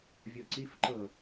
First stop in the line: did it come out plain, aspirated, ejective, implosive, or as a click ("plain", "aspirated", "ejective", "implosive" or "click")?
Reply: click